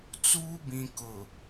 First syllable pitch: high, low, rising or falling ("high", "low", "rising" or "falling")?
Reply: high